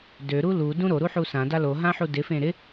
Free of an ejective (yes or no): yes